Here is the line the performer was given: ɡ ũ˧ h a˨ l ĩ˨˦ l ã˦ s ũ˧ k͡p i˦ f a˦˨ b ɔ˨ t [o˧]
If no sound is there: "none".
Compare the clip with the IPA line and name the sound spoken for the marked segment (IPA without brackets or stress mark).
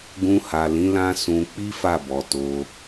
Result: o˧